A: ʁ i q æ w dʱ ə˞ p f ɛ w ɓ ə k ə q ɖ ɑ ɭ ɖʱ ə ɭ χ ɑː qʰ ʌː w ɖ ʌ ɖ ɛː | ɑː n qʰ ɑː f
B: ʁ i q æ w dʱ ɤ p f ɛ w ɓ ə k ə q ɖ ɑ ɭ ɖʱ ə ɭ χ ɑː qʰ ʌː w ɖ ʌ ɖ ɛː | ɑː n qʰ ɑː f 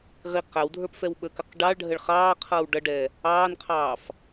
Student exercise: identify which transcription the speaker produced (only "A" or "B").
A